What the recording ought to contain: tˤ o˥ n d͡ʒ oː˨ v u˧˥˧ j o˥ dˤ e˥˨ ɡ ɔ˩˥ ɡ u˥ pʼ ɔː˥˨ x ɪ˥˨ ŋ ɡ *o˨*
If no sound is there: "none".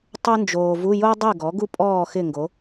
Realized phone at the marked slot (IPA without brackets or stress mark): o˩˥